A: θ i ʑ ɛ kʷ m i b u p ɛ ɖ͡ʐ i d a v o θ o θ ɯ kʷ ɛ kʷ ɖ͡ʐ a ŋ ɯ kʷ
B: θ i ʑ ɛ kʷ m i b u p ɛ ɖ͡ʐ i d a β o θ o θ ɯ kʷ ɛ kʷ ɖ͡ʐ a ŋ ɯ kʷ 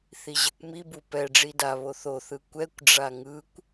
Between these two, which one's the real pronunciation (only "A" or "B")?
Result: B